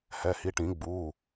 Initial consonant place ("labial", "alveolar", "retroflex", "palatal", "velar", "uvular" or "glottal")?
glottal